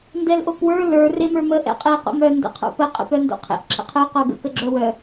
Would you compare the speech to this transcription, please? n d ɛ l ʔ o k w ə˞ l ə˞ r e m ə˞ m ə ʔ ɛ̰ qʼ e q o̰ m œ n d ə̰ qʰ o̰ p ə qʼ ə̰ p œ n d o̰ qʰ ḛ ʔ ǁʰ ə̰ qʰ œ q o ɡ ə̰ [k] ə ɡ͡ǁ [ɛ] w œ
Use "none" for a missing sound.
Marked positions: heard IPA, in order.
k, œ

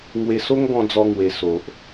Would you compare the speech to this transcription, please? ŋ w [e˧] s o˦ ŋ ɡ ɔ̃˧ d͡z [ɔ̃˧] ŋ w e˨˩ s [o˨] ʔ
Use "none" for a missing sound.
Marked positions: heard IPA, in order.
e˧, ɔ˧, o˨

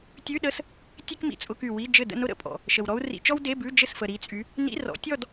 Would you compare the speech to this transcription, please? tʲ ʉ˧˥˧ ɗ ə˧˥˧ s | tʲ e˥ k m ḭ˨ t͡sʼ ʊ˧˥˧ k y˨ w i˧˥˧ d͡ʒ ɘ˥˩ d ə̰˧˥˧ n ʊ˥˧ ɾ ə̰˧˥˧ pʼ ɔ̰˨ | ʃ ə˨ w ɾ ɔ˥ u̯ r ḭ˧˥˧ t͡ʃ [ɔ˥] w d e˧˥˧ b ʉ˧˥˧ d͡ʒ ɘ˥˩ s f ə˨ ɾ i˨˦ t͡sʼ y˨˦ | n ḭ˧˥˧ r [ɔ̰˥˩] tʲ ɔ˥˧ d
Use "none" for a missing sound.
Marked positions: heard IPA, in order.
ɔ˥, ɔ̰˨˦

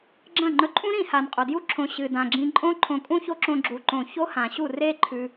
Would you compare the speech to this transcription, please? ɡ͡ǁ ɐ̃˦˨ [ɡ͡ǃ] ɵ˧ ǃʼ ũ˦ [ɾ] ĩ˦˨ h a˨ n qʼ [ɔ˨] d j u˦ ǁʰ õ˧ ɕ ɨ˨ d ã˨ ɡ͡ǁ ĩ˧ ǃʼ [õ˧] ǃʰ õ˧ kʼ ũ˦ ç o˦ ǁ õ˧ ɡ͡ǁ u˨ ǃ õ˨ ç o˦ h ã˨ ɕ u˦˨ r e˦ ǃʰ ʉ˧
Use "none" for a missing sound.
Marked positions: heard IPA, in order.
ŋ͡ǃ, ɾ, o˨, õ˦

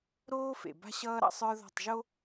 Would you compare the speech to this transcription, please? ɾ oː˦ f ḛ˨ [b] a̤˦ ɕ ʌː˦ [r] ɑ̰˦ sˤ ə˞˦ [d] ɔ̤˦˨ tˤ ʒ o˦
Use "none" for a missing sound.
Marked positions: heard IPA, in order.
b, ɾ, ð

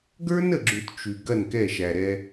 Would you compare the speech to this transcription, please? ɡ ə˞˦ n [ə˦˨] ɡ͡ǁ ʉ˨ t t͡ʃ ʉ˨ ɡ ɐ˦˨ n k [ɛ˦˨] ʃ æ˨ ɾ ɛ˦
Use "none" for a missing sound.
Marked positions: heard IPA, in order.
ə˨, ɛ˦˨

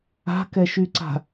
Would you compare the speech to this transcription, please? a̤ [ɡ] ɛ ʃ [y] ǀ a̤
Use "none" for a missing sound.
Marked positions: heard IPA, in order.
k, y

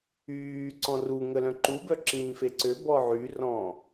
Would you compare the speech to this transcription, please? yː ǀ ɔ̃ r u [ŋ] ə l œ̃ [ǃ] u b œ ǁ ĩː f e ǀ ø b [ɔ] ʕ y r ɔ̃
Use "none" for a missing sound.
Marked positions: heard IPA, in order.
ŋ, ǃ, ɔ

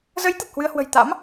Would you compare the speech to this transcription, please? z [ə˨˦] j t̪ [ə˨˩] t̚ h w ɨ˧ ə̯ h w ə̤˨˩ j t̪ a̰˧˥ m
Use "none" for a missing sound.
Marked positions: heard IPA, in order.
ə˨˦, ə˨˩

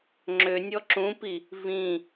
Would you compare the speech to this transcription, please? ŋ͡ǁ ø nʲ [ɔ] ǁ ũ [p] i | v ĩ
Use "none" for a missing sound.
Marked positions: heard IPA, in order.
ɔ, p

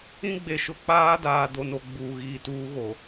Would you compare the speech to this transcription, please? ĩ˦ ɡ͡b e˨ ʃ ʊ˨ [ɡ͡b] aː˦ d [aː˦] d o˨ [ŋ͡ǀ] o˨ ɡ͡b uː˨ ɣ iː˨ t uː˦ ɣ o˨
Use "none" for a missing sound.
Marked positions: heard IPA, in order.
k͡p, aː˨, n

